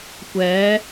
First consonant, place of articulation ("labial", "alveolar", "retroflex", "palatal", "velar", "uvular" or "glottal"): velar